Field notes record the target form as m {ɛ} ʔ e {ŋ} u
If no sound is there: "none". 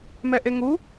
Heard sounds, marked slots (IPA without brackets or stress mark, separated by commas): ɛ, ŋ